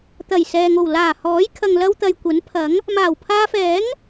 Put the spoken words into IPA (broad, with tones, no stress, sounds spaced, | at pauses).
t̪ ɐ˨˩ j s ɛː˨ ŋ o˨˩ w l aː˨˩ h ɔː˨˥ j kʰ ɐ˨ ŋ l ɐ˧ w t̪ ɐ˨ j kʷ ɐ˨˥ n pʰ ɐ˨˥ ŋ | m aː˨˩ w pʰ aː˧ f ɛː˨˥ ŋ